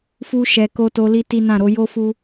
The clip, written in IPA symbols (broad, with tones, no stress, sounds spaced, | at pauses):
f u˧ ʃ ɛ˨ k o˧ t o˦ l i˦ t i˦ n ã˦˨ ɾ o˨˦ j o˦ f u˧